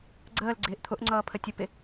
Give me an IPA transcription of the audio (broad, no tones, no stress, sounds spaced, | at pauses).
ɡ͡ǀ əː l ɡ͡ǀ ɪː ʔ t̪ʰ ʊ ʔ ŋ͡ǀ ʌː pʰ ə tʲ ʊ p ɪ